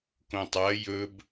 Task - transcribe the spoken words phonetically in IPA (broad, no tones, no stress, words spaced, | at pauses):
kõtˤɐ jɵb